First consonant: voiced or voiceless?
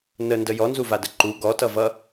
voiced